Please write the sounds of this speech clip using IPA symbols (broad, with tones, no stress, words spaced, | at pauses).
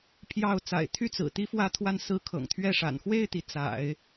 pʰjɑ˥˩ʊ̯ t͡sa̰˨˩ɪ̯t̪ʰy˥˩t͡sɹ̩˨˩ t̪i˥fwä˥˧t̪ʰwa˥˩n sɹ̩˧˥ kʰɤ̰˨˩ŋt̪ʰɥɛ˥˩ʂa̰˨˩n xwe˥˩ɪ̯t̪i˩ t͡sa̰˨˩˦ɪ̯